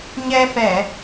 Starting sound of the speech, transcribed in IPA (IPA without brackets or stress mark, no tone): ɲ